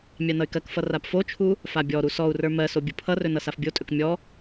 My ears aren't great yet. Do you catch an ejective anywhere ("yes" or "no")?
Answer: yes